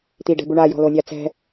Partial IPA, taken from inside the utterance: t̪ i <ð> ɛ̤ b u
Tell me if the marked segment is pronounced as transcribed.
no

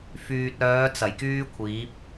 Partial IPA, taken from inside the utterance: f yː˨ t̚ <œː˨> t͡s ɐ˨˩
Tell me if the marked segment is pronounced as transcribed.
no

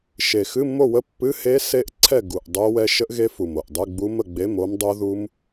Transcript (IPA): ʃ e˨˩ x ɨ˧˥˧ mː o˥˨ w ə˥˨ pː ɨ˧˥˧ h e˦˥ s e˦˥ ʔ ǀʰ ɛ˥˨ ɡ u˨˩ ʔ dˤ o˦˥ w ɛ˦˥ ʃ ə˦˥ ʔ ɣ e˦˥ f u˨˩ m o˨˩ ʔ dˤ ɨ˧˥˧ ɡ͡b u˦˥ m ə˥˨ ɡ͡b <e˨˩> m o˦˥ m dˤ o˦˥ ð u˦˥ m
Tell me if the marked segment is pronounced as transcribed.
no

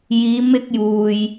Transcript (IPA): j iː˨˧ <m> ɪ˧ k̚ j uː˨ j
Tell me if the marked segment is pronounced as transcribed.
yes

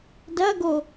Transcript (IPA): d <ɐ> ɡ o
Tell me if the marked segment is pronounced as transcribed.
yes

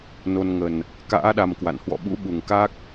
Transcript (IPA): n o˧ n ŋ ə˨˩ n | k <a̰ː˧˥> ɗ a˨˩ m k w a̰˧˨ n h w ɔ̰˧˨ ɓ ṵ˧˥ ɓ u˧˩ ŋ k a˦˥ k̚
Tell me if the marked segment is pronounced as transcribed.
yes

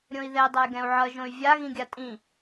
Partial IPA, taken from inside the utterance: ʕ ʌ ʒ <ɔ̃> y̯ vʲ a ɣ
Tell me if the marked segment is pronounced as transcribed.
no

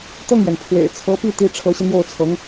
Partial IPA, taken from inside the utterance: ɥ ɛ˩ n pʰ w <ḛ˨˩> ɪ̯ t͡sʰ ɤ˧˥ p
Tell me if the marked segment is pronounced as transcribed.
yes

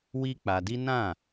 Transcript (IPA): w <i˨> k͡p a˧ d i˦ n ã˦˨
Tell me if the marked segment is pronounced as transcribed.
no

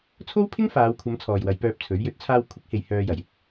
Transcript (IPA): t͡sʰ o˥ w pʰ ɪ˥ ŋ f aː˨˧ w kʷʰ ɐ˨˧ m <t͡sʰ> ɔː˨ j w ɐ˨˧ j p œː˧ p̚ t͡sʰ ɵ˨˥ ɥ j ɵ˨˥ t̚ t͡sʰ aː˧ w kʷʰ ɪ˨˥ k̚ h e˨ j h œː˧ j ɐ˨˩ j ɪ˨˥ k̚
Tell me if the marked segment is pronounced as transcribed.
yes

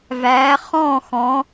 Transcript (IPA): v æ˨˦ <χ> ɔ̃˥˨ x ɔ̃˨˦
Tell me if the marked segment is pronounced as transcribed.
yes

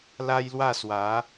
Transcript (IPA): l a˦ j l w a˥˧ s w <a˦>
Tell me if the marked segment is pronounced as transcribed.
no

